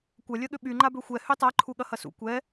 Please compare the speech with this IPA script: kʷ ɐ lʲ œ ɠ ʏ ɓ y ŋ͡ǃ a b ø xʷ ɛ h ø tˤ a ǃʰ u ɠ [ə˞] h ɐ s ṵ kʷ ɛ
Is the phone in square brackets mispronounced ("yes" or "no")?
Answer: yes